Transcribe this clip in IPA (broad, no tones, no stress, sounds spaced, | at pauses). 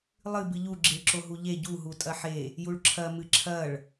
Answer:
lˠ ɨ b ɨ ʎ u ɡ͡ǁ i ɭ ǁ o ɦ u ʎ e ɟ u ɦ u tʼ ɐ ħ e | j u ɭ ǁʰ ɐ m ɨ ǁʰ ɐ ɭ